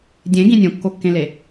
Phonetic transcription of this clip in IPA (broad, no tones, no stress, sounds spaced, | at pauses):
dʲ ẽ ɡ ĩ nʲ õ kː o kː ẽ l e